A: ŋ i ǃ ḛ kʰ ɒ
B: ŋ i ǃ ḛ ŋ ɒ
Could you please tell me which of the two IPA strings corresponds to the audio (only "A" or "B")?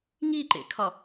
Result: A